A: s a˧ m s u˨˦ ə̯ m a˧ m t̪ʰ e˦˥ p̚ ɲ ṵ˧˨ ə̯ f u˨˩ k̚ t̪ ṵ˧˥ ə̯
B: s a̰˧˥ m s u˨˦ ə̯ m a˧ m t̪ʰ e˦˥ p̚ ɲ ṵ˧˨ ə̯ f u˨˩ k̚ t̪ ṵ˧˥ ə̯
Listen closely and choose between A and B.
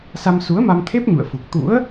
A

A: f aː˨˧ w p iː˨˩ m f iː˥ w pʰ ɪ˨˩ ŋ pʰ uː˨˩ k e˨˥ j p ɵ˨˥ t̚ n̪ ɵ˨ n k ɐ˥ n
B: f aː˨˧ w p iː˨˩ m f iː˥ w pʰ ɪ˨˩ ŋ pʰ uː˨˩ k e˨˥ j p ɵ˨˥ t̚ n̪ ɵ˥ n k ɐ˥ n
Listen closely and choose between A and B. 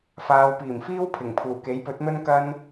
B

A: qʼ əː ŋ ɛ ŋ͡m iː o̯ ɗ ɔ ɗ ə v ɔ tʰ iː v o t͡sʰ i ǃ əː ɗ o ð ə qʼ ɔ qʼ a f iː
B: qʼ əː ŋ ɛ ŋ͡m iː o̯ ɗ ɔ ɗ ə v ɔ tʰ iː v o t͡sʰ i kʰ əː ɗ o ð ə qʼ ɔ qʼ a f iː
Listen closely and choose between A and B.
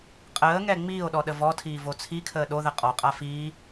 B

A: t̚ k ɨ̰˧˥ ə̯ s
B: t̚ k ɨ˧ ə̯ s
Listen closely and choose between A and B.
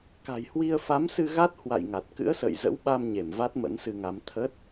A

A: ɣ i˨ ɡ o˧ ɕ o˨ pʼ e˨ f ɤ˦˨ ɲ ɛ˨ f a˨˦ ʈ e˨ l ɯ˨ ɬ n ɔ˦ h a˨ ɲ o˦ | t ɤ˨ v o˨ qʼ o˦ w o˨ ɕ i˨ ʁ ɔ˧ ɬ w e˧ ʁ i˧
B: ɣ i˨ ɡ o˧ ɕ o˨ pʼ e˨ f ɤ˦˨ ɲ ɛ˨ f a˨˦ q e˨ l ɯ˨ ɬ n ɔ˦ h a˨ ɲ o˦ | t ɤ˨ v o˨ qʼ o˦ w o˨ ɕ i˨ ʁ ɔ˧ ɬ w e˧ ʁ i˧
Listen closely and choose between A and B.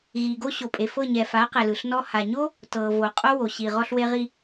B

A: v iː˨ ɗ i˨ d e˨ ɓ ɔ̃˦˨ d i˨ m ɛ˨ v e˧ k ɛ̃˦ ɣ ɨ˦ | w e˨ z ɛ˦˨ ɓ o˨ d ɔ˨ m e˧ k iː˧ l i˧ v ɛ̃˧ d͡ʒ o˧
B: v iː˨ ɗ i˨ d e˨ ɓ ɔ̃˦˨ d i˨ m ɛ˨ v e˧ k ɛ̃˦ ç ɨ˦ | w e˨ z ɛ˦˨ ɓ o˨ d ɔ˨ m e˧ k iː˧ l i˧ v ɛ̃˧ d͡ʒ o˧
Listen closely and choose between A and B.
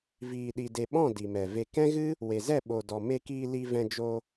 A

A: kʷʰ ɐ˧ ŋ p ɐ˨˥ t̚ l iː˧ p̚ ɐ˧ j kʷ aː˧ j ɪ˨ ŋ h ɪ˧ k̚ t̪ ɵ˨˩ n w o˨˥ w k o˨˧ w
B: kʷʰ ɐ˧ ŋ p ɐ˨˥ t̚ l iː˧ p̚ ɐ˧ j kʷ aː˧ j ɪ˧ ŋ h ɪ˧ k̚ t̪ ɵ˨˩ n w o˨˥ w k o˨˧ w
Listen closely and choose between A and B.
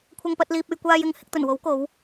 A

